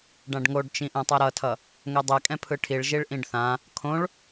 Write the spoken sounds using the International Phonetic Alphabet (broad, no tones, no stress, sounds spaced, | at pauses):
ɖ ã ɖ ŋ o ɖ t͡ʃ ĩ ʔ ɛ̃ tˤ ɛ ɾ ʌ tʰ ʌ | ŋ ɛ dˤ ɛ kʼ ɛ̃ pʰ ɯ ʈʰ i ɭ ʒ i ɭ ʔ ĩ ɖ θ ã | kʰ õ ɭ